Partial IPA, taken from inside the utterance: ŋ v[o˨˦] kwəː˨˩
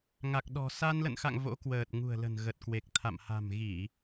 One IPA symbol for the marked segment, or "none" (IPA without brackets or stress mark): o̰˧˥